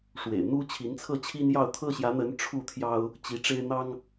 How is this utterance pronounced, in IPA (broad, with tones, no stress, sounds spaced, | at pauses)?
ʂ w ḛ˨˩ ɪ̯ n̪ u˦ t͡ɕʰ i˨˦ n t͡sʰ ɤ˥˨ t͡ɕʰ i˦ n j ɑ˥˨ ʊ̯ t̪ʰ ɤ˦ ɕ j ä˨˦ n̪ ə˨˦ n ʈ͡ʂʰ u˥˨ t̪ʰ j ɑ˦ ʊ̯ | t͡ɕ i˨˦ ʈ͡ʂ e˦ ɪ̯ n̪ ɑ˦ ŋ